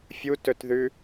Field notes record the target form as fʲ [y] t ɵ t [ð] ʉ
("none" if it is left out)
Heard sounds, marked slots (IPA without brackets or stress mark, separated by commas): u, ð